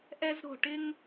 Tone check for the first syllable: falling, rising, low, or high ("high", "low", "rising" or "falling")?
high